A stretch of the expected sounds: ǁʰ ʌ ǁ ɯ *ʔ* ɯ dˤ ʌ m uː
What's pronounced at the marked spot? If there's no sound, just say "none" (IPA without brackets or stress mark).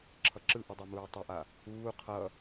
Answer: ʔ